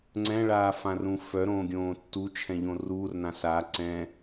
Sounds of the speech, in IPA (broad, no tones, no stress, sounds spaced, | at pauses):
ŋ͡ǀ ɛ̃ ɭ aː f ã r ũ f œ ɾ õː ɡʲ õː tː u t͡ʃʰ ɛ̃ ʎ õ r uː r n ã s a ǀ ɛ̃